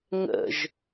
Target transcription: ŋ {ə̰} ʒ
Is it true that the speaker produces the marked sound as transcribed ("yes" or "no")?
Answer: yes